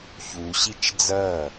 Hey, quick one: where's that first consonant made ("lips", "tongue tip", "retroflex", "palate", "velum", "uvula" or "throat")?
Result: palate